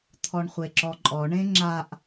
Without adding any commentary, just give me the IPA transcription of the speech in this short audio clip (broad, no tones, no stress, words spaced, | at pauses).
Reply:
t̪ʰɔɳχʷeǁɔǃʼɔ ɳẽŋ͡ǁaʔ